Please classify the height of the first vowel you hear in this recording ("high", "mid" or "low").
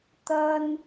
low